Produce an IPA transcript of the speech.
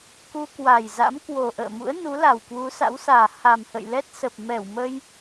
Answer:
k u˧ k w a˨˩ j z a̰˧˥ m k w o˨˩ ʔ ə̰ː˧˨ m ṵ˧˥ ə̯ n u˨˦ l a˨˩ w k w u˨˦ s a̰˧˥ w s aː˨˩ h a˨˩ m h ə̰˧˨ j l ɛ˦˥ t̚ s ə˨˩ p̚ m ɛ˧˩ w m ə˧ j

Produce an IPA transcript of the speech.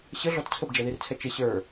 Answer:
ɕ ə ɮ ɔ t t͡sʰ ə b d͡ʒ ɛ ð i r t͡sʰ ɛ t͡ʃ ɪ ɕ ə˞

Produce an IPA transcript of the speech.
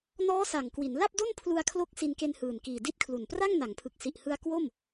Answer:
n ɔː˦˥ s a˨˩ ŋ k w i˩˦ n l a˥˩ p̚ d o˥˩ n pʰ l u˧ a̯ kʰ l o˦˥ k̚ s i˧ n k e˧ n h ɯː˨˩ n k iː˨˩ d i˦˥ t̚ kʰ l u˨˩ n p r a˥˩ ŋ n a˩˦ ŋ pʰ ɯ˨˩ k̚ s i˨˩ ʔ h ɯ˧ a̯ k w o˥˩ m

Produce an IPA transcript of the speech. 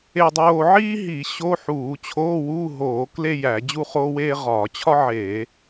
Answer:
e˥˧ dˤ oː˥˧ ʕ iː˥ ɦ i˧˩˧ ɕ o˧˥˧ ħ uː˧˩˧ t͡ɕʰ oː˧˥˧ w uː˧˥˧ ɦ oː˧˩˧ k l e˥˧ j æ˧˩˧ d͡ʑ u˥˧ χ oː˥ w eː˥ ʁ ɒː˧˩˧ t͡ɕʰ ɒ˥ ʕ eː˧˩˧

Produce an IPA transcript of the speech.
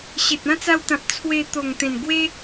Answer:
ɕ e˨ t̚ ã˦ t͡s a˧ w t̪ ã˨ p̚ t͡sʰ w e˧ t̪ o˨˩ ŋ t̪ ẽ˨˩ n ɡ w e˦

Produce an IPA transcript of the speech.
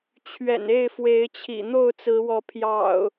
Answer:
t͡ɕʰ ɥ ɛ̰˨˩ n e˥˨ ɪ̯ f w e˨˦ ɪ̯ t͡ɕʰ ḭ˨˩ n̪ o˥˨ ʊ̯ t͡s ɹ̩˨˦ w ɔ˨˦ pʰ j ɑ̰˨˩ ʊ̯

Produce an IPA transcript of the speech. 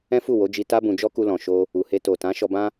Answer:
ɛ̃˦ f u˦˨ w o˨˦ d͡ʒ i˧ t a˦ b ũ˧ d͡ʒ ɔ˦ k u˧ l ɔ̃˨ ʃ o˧ | u˨ h e˧ t o˨ t ã˨˦ ʃ ɔ˧ b ã˦

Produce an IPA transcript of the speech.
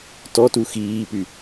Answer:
t ɔ t u x iː p y

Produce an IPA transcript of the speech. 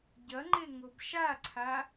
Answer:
ɟ ɐ ŋ͡ǃ e ŋ o b ʃ a ǀʰ a

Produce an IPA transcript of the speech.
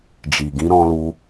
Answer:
d͡ʒ i˨ ɡ ĩ˧ ɾ ɔ̃˧ l u˧

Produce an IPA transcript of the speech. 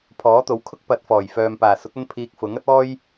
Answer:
pʰ ɔː˨˥ t̪ o˨˥ w kʰ ʊ˥ k̚ p ɐ˨˥ t̚ f ɔː˨˩ j f œː˨ m p aː˨˩ s ʊ˨˥ k̚ ɐ˧ n pʰ iː˧ k̚ f ʊ˨˥ ŋ ɐ˥ t̚ ɔː˥ j

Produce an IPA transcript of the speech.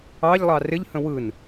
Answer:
ɑ ʎ lˠ ɑ r ɪ ʎ h ə̃ w ɯ n

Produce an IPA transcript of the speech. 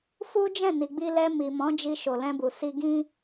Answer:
f u˦ d͡ʒ ɛ̃˦˨ n i˨ ɡ͡b i˧ l ɛ˧ m i˨ m ɔ̃˨˦ d͡ʒ i˧ ʃ o˨ l ɛ̃˧ b u˨ s i˧ ɡ ĩ˦

